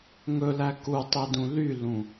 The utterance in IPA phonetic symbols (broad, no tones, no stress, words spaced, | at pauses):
ŋɵlæ kutˤedũ lylũ